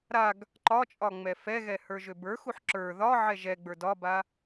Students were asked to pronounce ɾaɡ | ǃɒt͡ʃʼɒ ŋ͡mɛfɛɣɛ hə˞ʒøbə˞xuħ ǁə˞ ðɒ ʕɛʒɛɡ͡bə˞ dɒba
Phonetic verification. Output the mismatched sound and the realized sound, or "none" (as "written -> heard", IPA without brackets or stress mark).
none